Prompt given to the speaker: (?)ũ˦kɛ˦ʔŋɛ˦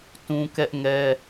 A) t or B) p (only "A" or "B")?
A